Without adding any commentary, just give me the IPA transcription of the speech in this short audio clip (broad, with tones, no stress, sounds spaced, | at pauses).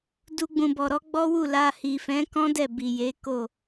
d u˧ ɡ͡b ũ˨ b ɔ˨ ɾ ɔ˨˦ ɡ͡b ɔ˦ w u˦˨ l a˧ h i˨ f ɛ̃˨˦ k ɔ̃˦ d ɛ˦˨ b i˨ j e˨˦ k o˦˨